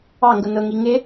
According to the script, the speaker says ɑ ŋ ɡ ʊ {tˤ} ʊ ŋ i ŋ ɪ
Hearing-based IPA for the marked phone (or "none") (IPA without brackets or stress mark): n